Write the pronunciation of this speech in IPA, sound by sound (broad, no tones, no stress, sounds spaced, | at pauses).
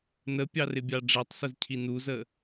n ə pʲ ɑ r ɪ bʲ ɑ ɖ͡ʐ æ tˤ s ʊ z cʰ i n u z ə